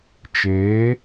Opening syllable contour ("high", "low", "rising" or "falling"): rising